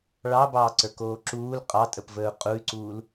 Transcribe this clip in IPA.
ɭ ɑ b ɑː ǀ ə˞ k oː ǁ uː l qʼ ɑ tʼ ə p v əː u̯ qʼ u y̯ ǀ uː l

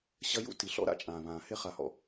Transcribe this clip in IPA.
ɕ ɐ˦ j ṵ˦ t i˨ ɬ ɔ̰˦ ɾ a̰˦ t͡ʃʼ ãː˨ β ãː˨ h e˦ χ a˨ h ɔ̰˨

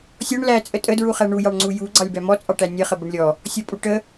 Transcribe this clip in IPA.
sʲ ɔ ɳ l æ t͡sʼ ə tʼ ə d ɹ u χ æ ɳ u j ɑ ɳ ŋ͡ǀ u j u ɡ͡ǀ ɑ lʲ b æ m ɔ t͡sʼ ɑ ʈ æ nʲ ə χ ə b ə ɳ lʲ ɔ | sʲ ɔ pʼ u ʈ ə

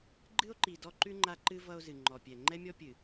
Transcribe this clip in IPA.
ɡ͡ǃ ɨ˦ o̯ ǃ i˨ d ɔ˦ ǃ ʉ˦ ŋ͡ǃ a˦ ǃ ɨ˦ v ʌ˦ o̯ z ɨ˨ ŋ͡ǃ ɔ˨ pʲ ɛ˨ ŋ͡ǃ ɛ˦ mʲ ɔ˦ pʲ ɨ˨

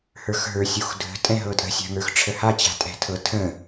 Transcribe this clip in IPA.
h ə˞ x ɦ ə˞ sʲ u x dʱ ə̤ tʼ ɛ̃ ɦ ɤ tʼ ə̤ sʲ a̤ ŋ ə˞ x ʈ͡ʂʰ ə h a t͡ɕ a̤ tʼ ɛ̤ tʰ ɤ tʰ ə̃

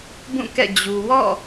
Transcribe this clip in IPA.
b ũ˦˨ k ɛ̰˦˨ d͡ʑ u˨ w ɔ̰˦˨

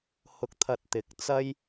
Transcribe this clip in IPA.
h ʊ˨ k̚ t̪ʰ ɐ˨ t̚ t̪ ɪ˨˥ k̚ t͡s ɐ˥ j

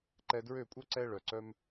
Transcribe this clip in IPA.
ǃ ɛ˧ d ɹ ø˥˩ kʷʼ œ˥ ǀ ɛ˥ ɭ œ˩ ǀ œ˧ m

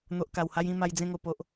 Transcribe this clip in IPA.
n̪ o˨ ʔ k a˨˩ w h a˧ j ĩ˧ m a˧ j d͡z ẽ˥˧ ŋ o˧ p o˨ ʔ

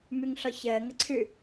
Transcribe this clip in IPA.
m ʉ ŋ ɬ ɔ ç əː ŋ ə ǀʰ ʉ

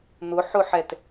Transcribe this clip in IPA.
n̪ ʊ ħ ʊ ħ ɛ t

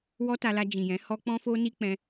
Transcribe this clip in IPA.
w ɔ˦ t a˧ l a˧ d͡ʒ ĩ˨ j ɛ̃˨˦ h ɔ˦ k͡p ɔ̃˦ f o˦ n i˦ k͡p ɛ̃˧

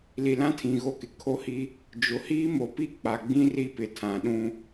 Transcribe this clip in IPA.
l i˨ l ã˦ tʰ ĩ˨ ɣ o˦ k ɪ˨ kʰ o˦ h i˦ | d͡ʒ ʊ˨ h iː˦ m o˨ p i˦ k͡p a˨ ɡ͡b ĩ˦ r i˦ p ɪ˨ tʰ ã˨ ɗ ũ˦

